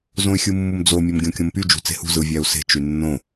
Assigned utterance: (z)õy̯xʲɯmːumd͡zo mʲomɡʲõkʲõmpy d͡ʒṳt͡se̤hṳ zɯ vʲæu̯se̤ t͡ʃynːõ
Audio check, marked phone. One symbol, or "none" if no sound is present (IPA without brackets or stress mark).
z